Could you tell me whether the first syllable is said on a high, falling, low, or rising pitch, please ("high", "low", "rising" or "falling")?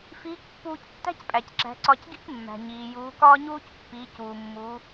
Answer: rising